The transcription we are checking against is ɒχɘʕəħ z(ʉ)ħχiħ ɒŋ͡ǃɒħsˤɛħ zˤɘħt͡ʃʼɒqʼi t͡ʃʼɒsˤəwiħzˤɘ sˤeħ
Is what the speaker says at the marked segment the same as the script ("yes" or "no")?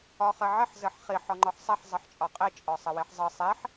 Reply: no